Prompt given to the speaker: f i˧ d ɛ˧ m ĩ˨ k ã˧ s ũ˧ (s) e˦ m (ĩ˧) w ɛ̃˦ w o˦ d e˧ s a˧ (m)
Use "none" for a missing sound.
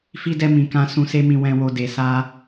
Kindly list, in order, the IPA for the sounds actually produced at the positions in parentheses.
s, ĩ˧, none

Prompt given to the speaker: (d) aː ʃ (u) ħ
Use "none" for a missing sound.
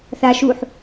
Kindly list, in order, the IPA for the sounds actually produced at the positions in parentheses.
θ, u

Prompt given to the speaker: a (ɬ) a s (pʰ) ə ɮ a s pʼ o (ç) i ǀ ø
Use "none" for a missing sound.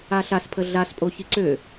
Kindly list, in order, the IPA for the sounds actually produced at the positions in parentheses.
ɬ, pʰ, ç

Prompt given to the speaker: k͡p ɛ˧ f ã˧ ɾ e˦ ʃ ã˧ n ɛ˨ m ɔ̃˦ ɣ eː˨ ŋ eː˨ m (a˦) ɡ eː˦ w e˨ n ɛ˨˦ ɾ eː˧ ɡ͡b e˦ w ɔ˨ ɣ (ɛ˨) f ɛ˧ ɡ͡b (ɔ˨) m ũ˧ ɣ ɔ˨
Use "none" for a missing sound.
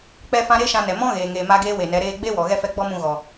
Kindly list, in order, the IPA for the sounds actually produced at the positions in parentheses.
a˦, ɛ˦, ɔ˦

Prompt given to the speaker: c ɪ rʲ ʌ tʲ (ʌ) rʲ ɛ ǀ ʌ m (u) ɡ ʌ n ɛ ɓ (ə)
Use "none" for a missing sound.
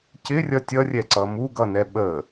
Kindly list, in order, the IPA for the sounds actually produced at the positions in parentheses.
ʌ, u, ə

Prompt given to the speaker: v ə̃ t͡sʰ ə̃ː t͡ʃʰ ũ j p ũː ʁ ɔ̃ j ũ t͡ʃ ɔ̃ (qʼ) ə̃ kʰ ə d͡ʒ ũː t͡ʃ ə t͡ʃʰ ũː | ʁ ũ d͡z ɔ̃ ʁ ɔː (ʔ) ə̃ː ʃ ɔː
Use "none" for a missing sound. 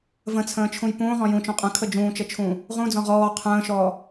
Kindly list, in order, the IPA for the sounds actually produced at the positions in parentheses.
qʼ, qʰ

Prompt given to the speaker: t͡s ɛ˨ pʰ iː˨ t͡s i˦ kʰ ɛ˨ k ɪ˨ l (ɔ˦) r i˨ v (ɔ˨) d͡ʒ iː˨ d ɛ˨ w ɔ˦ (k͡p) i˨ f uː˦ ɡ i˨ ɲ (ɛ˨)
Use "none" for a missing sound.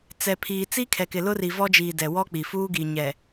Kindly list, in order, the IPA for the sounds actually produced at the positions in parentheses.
ʊ˦, ɔ˦, k͡p, ɛ˨

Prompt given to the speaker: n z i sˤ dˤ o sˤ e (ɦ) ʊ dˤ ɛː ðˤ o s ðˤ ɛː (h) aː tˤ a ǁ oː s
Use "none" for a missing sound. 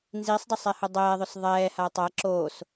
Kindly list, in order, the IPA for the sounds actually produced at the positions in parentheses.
h, h

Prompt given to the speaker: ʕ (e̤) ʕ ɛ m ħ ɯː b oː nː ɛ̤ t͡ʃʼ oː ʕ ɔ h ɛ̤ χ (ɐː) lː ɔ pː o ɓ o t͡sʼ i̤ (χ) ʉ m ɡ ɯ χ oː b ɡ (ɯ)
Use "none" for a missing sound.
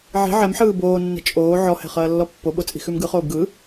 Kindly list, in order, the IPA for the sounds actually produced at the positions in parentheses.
i̤, ɐː, x, ɯ

